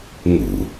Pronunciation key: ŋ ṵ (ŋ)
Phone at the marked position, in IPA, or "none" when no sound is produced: none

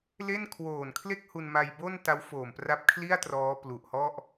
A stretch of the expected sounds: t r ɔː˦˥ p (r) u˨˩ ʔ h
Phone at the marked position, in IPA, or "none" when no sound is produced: l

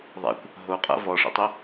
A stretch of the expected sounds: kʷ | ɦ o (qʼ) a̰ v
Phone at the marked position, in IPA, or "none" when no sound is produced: qʼ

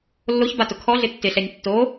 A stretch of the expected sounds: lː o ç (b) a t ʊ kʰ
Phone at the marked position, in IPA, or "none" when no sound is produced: b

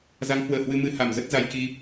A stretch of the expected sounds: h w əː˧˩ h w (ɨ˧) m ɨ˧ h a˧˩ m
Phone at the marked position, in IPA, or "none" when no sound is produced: ɨ˧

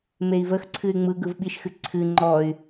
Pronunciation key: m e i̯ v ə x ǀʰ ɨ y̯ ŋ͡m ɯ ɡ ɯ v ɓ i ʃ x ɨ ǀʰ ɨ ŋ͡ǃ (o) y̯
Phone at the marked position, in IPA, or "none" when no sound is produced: ɔ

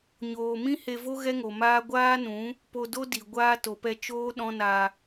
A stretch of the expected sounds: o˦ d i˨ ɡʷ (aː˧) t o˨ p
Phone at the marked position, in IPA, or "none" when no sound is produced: aː˦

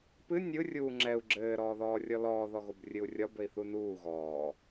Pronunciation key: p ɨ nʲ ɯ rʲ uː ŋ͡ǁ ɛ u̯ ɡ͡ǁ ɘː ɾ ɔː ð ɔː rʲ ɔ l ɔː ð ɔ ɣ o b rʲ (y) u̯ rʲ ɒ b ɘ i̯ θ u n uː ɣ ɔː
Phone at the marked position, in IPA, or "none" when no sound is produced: ɨ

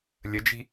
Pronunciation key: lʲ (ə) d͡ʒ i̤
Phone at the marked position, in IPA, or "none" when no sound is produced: ə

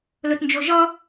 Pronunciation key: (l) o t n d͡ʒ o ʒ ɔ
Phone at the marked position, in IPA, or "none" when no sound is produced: l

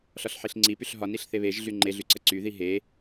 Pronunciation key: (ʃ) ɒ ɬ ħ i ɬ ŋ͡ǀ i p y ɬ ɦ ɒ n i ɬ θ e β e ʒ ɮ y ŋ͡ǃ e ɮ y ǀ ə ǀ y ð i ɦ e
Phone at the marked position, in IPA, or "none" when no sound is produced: ɬ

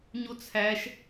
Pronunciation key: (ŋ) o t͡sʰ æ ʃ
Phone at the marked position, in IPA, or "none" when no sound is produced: ɲ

